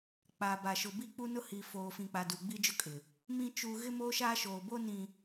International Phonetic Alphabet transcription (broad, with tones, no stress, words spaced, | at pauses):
k͡pa˨ ba˨ʃʊ˨ bi˦k͡pu˦nʊ˦ hi˨foː˨fĩ˨k͡pa˨ du˨ɡ͡bi˦d͡ʒʊ˦kʼɪ˨ | mĩ˦ t͡ʃu˨ ɣɪ˦moː˦ʃaː˦ʃoː˨ bo˦ nĩ˨